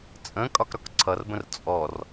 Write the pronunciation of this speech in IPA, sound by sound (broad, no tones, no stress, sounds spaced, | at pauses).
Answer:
t͡sʼ ə̃ kʼ ɒ k ɾ ɒ k ǀʰ ʌ r b ə̃ r t͡sʼ ɔ r